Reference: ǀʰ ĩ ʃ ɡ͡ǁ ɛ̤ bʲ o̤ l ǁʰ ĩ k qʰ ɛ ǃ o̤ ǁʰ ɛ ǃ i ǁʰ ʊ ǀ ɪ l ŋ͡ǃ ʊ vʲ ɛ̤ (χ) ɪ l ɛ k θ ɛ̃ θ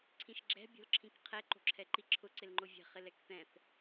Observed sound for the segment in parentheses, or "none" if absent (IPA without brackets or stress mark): χ